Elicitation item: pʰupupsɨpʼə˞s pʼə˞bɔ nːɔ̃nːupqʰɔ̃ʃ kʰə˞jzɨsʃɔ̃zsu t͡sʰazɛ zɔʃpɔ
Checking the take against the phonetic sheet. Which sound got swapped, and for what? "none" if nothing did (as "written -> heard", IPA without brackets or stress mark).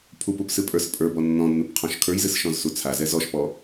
none